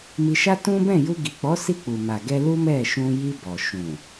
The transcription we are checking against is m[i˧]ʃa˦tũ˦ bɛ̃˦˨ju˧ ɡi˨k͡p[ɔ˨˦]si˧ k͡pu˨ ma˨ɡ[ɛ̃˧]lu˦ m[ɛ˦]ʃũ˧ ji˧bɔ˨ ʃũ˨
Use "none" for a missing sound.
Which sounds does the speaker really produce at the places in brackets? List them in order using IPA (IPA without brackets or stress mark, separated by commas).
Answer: i˧, ɔ˨˦, ɛ˧, ɛ˦˨